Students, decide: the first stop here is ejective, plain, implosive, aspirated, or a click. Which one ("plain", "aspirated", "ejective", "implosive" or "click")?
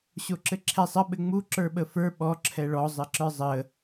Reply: click